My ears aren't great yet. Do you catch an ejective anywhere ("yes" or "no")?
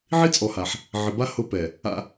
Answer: yes